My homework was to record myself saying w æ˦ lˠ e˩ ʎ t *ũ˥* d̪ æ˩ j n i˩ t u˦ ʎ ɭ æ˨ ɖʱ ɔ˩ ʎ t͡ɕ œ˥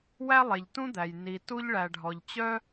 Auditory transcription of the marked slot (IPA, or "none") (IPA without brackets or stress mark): ũ˥